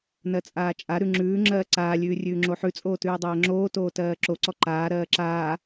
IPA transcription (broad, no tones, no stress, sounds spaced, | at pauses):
n ɜ t͡sʼ aː t͡ʃʼ a ɾ ʉ ŋ͡ǁ ʉː ŋ͡ǁ ɜː ǀ aː lʲ ʉː rʲ ʉː ŋ͡ǁ o ħ ʉ t͡sʼ oː t ʉː dˤ ɜː ŋ͡ǁ oː t oː t ɜː ǁ o ǀ ɔ ǃ aː ɾ ɜː ǁ aː